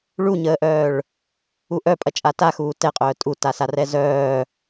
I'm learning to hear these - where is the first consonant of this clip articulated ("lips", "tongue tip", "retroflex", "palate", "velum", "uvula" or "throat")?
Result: retroflex